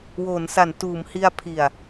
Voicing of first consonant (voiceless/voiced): voiced